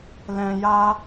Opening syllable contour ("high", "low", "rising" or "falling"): low